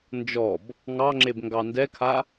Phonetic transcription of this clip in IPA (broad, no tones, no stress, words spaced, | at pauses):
nd͡ʒɔb | ŋɑŋ͡ǁebŋɡɑ ndɛkʰa